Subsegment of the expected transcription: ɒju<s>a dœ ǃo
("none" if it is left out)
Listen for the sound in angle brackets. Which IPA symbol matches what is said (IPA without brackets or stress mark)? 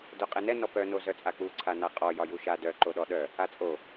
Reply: ʃ